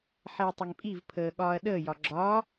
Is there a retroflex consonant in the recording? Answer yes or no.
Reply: no